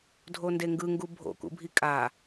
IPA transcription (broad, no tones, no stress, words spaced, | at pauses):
dʱondeŋɡɯŋɡu bʱo̰kṵbʱi kʼa